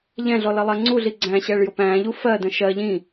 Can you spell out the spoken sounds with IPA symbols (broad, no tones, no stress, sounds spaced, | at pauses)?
ʎ ɛ̃ ɮ ɔ l ʌ lˠ ɛ ŋ͡ǀ u ɮ i ɡ͡ǀ æ̃ ɕ ɛ ɭ j ʊ p æ̃ː ʎ u f ɜ d ə̃ ʃ ɜ ʎ ĩ